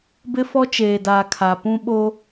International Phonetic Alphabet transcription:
b ɪ˦ f ɔ˦ t͡ʃ eː˨ d aː˨ kʰ a˨ p ũ˦ ɓ oː˦

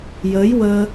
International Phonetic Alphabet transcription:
j əː˧˥ j w əː˧

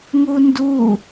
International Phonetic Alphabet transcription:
ŋ u n d u

